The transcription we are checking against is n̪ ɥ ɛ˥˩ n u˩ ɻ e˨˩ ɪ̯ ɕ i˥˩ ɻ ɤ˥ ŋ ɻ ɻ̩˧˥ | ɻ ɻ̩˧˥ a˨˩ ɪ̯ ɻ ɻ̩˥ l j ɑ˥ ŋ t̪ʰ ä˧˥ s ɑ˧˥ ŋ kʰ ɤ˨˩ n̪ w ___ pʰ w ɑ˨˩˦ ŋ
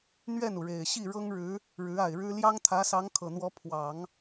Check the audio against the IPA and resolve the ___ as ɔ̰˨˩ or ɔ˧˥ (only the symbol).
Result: ɔ˧˥